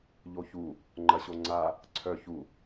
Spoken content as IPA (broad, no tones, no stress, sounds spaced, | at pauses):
ʎ o ç u | ŋ͡ǃ ɐ ɕ o ŋ͡ǀ a | ǀʰ œ ç u